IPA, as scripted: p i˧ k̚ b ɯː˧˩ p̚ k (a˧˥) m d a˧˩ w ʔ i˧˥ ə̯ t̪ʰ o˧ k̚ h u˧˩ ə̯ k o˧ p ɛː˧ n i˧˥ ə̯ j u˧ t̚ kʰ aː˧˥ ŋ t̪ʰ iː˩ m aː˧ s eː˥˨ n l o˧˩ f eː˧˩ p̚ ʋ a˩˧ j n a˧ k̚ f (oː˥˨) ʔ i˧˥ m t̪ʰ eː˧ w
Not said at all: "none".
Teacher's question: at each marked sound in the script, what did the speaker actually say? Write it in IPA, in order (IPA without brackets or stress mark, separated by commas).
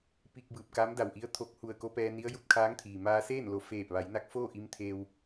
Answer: a˧˥, oː˥˨